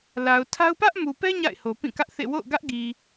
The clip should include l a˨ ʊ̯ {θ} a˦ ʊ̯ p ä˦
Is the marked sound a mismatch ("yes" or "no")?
yes